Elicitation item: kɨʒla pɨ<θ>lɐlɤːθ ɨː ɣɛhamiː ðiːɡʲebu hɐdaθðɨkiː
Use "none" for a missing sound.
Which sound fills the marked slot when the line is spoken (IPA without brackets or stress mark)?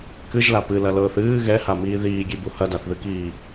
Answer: none